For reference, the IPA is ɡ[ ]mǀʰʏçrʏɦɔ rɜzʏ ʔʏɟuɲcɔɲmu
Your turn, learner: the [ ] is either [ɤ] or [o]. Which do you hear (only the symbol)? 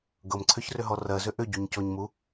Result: ɤ